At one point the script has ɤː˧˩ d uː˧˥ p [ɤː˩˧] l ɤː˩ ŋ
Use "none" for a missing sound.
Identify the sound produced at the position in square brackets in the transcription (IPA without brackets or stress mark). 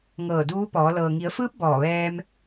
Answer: ɔː˩˧